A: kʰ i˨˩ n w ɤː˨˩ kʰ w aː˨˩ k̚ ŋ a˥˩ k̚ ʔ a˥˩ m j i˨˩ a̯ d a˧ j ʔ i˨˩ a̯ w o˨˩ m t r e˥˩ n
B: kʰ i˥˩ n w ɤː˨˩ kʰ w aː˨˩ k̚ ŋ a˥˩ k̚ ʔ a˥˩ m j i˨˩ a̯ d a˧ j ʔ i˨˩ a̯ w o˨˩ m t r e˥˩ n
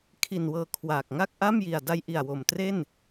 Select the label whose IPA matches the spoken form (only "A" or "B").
A